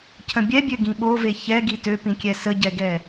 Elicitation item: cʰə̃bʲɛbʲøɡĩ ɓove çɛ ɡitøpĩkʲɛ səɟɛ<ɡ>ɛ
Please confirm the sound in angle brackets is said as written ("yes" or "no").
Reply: yes